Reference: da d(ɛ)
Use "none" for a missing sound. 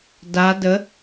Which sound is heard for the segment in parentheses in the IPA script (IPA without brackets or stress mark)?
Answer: ə